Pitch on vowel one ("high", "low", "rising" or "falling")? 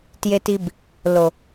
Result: low